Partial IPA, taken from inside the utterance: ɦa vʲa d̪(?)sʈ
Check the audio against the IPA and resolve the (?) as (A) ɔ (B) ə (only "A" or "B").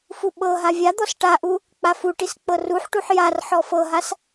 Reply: A